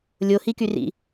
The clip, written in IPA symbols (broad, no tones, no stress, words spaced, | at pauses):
lʲohikyrḭ